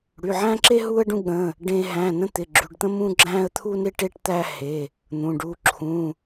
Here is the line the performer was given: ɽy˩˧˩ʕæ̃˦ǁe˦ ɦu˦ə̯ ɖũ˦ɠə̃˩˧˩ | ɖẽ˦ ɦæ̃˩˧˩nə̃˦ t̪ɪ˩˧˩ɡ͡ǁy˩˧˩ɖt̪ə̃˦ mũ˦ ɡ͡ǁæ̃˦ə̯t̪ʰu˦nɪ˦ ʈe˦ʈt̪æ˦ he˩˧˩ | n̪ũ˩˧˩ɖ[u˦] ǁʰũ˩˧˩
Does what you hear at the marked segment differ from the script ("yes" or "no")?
no